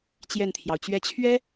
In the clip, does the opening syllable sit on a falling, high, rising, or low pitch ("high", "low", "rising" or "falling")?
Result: falling